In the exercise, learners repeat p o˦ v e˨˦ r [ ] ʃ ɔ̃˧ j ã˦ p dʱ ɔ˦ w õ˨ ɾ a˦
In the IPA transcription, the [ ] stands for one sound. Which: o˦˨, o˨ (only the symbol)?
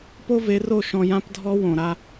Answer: o˦˨